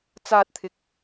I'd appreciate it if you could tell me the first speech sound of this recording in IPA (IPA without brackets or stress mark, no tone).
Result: t͡s